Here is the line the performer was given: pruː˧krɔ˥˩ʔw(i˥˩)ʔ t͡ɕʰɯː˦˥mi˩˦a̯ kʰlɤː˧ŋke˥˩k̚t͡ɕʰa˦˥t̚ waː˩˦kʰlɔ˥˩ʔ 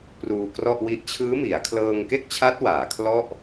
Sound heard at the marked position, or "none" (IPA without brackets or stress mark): i˥˩